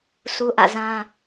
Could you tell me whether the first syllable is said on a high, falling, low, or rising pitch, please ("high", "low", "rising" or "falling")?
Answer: high